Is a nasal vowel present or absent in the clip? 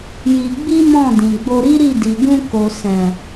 present